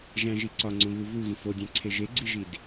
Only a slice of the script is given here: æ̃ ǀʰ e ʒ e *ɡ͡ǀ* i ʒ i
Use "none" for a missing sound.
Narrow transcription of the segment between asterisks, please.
ɡ͡ǀ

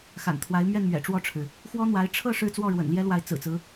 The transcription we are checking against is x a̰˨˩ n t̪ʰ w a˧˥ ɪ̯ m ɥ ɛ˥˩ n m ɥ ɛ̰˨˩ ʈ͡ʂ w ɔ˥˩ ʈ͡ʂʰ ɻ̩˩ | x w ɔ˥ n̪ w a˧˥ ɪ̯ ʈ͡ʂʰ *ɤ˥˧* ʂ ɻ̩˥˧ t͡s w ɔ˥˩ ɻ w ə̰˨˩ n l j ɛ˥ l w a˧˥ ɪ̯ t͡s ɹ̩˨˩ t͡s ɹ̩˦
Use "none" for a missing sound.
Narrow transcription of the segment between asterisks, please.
ɤ˥˧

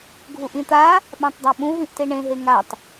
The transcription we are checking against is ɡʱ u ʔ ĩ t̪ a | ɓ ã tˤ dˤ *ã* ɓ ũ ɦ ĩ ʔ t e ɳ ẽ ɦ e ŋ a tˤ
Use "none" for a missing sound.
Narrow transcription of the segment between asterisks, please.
a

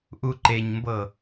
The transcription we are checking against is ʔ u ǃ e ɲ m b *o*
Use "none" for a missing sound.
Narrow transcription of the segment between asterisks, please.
ɤ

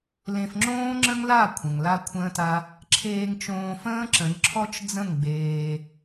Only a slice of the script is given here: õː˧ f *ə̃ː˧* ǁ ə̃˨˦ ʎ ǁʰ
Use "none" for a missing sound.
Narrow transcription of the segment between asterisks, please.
ə̃ː˦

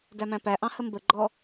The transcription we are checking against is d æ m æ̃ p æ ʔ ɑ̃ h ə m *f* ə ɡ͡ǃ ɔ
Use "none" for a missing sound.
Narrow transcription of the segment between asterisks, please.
b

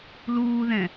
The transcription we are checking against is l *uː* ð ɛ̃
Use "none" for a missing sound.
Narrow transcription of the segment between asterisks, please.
uː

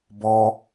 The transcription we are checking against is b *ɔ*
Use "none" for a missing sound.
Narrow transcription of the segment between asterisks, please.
ɔ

